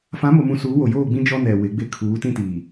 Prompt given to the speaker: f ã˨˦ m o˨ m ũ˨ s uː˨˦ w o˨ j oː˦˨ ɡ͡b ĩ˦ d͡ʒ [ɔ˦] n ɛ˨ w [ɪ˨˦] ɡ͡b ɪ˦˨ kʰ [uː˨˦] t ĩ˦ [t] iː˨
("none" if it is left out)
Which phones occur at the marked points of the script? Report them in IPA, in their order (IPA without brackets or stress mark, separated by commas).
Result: ɔ˦, ɪ˨˦, uː˨˦, t